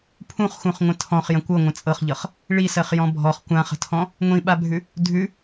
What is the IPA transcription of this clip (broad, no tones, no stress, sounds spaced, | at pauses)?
pʰ ũ χ x ũ χ ŋʷ ə̃ tʰ ɔ̃ χ j ə̃ kʷ ɤ ŋʷ ə̃ t͡sʼ ɤ χ ʎ ɤ χ | ɭ i s ɜ χ j ɔ̃ bʱ ɔ χ kʷ ã χ ə̤ tʰ ɔ̃ | ŋʷ ĩ ɓ a bʱ ʉ | dʱ ʉ